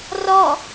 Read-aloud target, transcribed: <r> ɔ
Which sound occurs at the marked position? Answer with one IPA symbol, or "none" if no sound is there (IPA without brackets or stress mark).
r